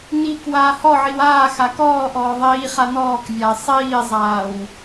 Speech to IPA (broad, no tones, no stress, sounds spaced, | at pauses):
n i k w aː h ɔ ʕ i w aː x a k ɔː ʔ ɔː ðˤ iː χ a n ɔː k vʲ a ɪ̯ sˤ iː zˤ aː w